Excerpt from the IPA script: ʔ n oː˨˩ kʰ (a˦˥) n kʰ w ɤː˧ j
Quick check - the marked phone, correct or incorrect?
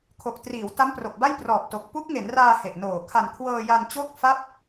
incorrect